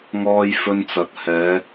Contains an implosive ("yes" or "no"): no